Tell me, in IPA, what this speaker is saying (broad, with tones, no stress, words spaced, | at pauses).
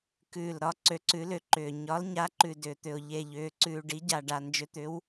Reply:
kʉː˨˩lɾɒ˩˥ǀø˩˥ ǀʉ˩˥lʏ˨˩ǃʏː˨˩ ɲɒ˩˥lɲa˩˥ ǃʉ˨˩dʏː˨˩t̪ʏ˨˩ʊ̯ ʎe˨˩ ʎʏː˨˩ ǀʉː˨˩ɖi˩˥ ɟa˨˩ɖa˨˩nd͡ʒʏ˩˥t̪ʏ˩˥w